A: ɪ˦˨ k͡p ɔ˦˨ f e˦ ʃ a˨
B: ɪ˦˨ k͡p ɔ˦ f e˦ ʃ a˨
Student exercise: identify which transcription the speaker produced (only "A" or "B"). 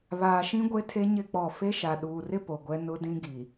A